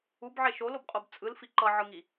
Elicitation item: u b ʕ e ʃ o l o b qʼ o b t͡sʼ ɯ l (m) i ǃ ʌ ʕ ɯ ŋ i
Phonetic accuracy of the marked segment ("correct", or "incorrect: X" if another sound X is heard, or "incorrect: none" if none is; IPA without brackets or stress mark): incorrect: f